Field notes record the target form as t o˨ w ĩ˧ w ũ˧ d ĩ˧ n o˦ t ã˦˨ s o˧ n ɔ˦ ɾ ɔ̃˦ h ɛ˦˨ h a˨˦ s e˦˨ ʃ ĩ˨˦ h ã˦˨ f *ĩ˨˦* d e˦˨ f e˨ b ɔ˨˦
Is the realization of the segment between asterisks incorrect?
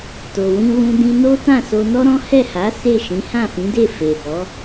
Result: no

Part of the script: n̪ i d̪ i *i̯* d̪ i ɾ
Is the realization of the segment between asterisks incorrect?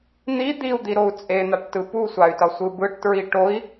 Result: yes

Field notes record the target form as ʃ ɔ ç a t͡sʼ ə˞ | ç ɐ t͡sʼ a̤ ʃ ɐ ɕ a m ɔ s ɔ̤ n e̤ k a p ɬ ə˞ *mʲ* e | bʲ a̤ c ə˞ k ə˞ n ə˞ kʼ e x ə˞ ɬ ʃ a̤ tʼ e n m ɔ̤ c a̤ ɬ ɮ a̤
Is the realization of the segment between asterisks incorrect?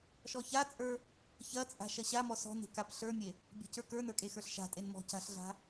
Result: no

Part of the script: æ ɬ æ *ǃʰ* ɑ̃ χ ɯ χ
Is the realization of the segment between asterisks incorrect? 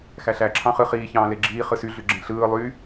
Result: yes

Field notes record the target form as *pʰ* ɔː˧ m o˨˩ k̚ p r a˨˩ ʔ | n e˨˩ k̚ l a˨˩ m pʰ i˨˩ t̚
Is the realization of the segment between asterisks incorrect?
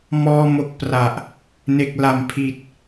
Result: yes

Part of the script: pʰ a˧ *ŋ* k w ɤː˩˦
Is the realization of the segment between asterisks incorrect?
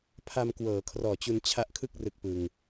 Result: yes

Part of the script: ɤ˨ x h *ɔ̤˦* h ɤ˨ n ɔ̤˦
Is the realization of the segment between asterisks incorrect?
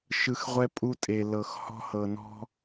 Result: no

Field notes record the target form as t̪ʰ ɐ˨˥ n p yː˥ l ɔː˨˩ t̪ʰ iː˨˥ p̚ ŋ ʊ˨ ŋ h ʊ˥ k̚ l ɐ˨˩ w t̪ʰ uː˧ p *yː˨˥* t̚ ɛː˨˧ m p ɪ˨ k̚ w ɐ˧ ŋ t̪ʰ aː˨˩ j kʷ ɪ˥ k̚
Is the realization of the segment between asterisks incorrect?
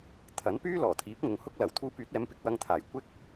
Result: no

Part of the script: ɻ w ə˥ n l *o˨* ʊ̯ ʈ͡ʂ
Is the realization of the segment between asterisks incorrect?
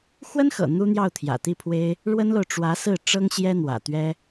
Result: no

